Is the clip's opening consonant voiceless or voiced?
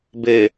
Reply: voiced